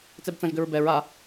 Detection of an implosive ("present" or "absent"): absent